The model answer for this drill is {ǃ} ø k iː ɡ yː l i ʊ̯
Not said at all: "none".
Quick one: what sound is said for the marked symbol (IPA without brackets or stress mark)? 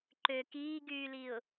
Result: ǃ